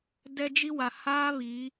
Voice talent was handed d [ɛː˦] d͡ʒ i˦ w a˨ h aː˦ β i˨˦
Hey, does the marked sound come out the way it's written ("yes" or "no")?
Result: no